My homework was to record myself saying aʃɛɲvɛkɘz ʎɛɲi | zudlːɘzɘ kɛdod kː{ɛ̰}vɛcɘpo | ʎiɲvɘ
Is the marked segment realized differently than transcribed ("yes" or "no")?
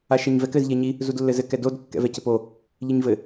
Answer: no